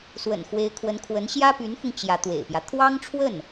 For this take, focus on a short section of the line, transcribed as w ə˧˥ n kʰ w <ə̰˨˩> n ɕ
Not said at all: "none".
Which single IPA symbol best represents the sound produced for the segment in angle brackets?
ə˧˥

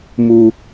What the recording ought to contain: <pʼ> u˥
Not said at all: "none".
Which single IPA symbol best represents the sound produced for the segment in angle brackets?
m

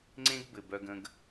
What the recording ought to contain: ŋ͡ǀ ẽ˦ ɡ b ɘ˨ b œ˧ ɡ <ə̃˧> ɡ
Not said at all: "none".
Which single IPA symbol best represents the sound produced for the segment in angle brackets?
ə̃˧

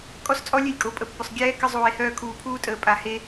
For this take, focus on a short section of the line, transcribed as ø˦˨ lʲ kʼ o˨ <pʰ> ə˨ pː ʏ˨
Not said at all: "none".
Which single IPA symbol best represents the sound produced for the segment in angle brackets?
pʼ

